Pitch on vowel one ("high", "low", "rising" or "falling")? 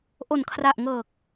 low